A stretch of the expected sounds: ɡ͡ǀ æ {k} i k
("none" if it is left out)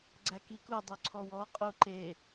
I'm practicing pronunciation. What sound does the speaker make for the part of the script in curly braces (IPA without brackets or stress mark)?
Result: k